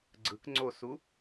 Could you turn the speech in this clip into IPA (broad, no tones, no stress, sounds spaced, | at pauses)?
ɡ͡ǀ ɯ k ŋ͡ǀ o s u